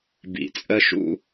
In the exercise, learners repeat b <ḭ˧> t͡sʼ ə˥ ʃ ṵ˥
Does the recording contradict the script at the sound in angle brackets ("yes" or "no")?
no